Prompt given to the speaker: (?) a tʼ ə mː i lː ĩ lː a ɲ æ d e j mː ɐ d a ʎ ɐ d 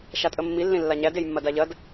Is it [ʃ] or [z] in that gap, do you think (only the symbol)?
ʃ